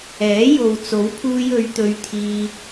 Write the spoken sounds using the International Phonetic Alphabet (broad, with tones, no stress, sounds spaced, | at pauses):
ɛː˨˥ j o˨ w t͡s o˨˥ w pʰ uː˧ j ɵ˨˧ ɥ t̪ ɵ˧ ɥ t̪ʰ iː˧